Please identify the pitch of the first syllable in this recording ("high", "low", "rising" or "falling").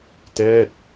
falling